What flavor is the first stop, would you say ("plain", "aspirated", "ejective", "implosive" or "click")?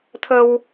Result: aspirated